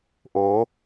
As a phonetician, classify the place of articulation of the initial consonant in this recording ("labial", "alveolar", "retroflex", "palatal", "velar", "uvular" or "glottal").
glottal